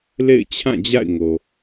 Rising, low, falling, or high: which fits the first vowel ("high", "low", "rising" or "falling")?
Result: falling